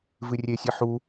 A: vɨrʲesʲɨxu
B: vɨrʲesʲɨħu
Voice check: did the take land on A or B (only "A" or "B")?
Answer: B